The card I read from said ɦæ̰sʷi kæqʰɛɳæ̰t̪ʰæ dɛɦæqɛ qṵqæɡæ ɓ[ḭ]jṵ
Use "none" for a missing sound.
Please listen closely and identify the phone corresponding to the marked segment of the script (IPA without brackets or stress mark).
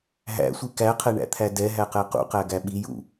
i